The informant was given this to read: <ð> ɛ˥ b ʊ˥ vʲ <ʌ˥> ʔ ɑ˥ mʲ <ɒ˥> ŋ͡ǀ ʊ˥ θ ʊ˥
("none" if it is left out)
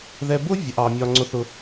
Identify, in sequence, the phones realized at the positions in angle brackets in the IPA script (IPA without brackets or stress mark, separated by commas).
ð, ʌ˥, ɒ˥